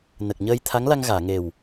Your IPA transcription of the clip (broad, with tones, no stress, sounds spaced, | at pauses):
n ə˨˩ k̚ ɲ əː˧ j t̪ʰ a˧˥ ŋ l a˧ ŋ ɣ aː˨˩˨ ŋ e˨˩ w